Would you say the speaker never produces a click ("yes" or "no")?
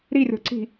no